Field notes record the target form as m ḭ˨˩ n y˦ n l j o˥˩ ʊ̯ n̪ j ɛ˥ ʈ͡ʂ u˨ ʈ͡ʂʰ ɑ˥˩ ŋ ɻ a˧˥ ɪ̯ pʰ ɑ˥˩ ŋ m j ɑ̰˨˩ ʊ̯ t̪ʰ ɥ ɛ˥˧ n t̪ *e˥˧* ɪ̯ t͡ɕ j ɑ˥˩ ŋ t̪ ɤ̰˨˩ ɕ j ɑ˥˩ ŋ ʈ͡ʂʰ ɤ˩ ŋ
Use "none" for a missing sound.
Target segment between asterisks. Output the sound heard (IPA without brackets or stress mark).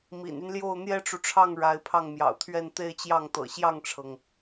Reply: e˥˧